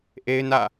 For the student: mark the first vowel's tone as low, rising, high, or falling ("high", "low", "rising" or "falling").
high